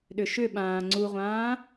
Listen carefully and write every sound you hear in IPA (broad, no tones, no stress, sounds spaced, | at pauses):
ɗ ʏ ʃ ʏ ɓ ãː ŋ͡ǀ u ʁʷ ãː